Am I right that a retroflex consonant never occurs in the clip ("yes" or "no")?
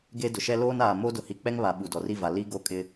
yes